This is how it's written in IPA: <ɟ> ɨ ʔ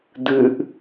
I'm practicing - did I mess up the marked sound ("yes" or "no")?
yes